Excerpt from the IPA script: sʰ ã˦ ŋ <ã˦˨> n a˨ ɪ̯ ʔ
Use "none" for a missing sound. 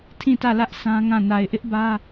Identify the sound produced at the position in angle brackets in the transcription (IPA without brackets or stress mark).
ã˦˨